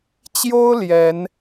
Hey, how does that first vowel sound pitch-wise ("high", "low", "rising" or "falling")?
high